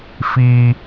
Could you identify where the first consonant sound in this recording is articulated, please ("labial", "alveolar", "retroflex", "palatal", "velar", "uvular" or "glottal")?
labial